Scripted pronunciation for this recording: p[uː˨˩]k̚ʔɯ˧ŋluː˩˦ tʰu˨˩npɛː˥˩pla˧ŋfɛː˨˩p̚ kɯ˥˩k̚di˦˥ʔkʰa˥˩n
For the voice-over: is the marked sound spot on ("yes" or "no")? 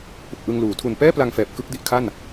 no